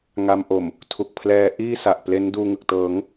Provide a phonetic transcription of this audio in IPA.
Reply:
ŋ a˧ m ʔ o˨˩ m | tʰ u˨˩ k̚ pʰ l ɛː˦˥ ʔ iː˥˩ s a˨˩ ʔ p l e˦˥ n d uː˧ ŋ ɯ˨˩ k̚ t ɤː˩˦ ŋ

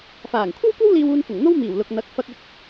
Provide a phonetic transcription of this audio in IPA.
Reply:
f aː˨˩ ŋ kʷʰ ɐ˥ w kʷ ɐ˥ w l iː˧ w uː˧ n f ʊ˨˩ ŋ n̪ o˥ w m iː˨˩ w l ʊ˨ k̚ n̪ ɐ˨˥ k̚ f ɐ˧ k̚ ʊ˧ k̚

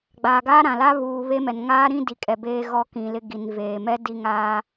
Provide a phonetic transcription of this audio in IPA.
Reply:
ɡ͡b aː˨ ɡ aː˦ ɾ ã˨ l a˦ β uː˨ β e˦ m ɛ˨ n ŋ aː˦ ɾ ĩ˦ d i˨ kʼ ɛ˨ b eː˦ ɣ ɔ˦ k ĩ˨ l ɪ˦ ɡ i˨ n v eː˨ m ɛ˦ d i˦˨ ŋ aː˦

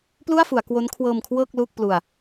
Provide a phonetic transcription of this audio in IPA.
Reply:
p l u˥˩ a̯ f u˩˦ a̯ k w o˦˥ n kʰ w ɤː˧ m kʰ w ɤː˥˩ k̚ l uː˥˩ k̚ p l u˧ a̯

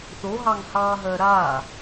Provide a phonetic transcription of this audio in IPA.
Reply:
θ o ɦ ɑ ŋ h ɑ ɦ ɜ ɾ aː

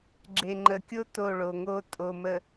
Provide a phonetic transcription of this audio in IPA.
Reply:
ɡ͡ǁ e˨ ŋ͡ǃ ə˨ kʲ o˦ t o˦˨ ɭ o˨ ŋ o˦ tʼ o˨ m ə˨

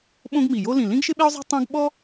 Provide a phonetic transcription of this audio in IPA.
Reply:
ɓ õ˥ ɡ m i˧˩ j o˥ l ĩ˧˩ l ĩ˥ ɡ ʃ ɪ˥ ɓ e˥ ʊ̯ zˤ ɛ̤˥ tˤ õ˥ ɡ ɓ ɔ˥

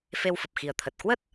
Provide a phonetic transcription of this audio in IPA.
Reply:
f e˧ w f ə˨˩ p̚ x i˨˩ ə̯ t̪ʰ ə˨˩ t̚ k w ə˦˥ t̚

